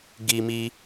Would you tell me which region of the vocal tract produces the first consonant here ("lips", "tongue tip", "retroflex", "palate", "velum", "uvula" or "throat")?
velum